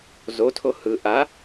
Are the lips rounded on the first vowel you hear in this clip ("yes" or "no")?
yes